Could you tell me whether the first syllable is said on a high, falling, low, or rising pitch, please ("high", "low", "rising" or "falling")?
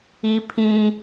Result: high